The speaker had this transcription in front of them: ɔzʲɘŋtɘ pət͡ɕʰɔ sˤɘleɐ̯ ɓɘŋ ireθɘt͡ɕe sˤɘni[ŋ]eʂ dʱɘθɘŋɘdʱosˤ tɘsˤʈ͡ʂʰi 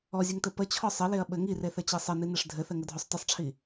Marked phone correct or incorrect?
incorrect